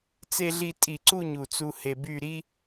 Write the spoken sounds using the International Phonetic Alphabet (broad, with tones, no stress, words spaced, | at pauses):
t͡se˧ɮi˧tʼi˧˩ ǀu˥˧ ɲu˧˩t͡su˧ he˧by˥˧ ɾi˥